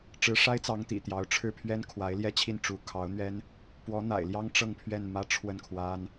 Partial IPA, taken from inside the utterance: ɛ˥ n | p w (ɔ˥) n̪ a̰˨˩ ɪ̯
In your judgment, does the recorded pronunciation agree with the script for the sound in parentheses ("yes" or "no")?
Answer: no